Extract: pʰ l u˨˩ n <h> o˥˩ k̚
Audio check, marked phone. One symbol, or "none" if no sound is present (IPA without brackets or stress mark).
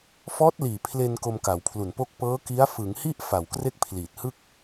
p